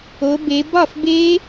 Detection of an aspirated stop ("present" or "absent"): absent